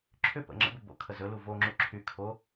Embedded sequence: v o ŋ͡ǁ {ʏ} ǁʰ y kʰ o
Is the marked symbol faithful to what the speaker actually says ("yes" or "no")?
no